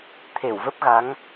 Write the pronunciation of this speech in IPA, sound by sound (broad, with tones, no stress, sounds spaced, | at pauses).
t̪ʰ e˧˩ w v ə˦˥ p̚ ɣ a˨˦ ŋ